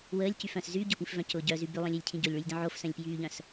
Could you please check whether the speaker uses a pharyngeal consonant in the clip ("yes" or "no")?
yes